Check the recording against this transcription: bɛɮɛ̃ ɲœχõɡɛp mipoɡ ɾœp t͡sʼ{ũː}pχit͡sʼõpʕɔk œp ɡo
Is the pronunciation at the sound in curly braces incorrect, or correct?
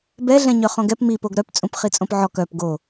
incorrect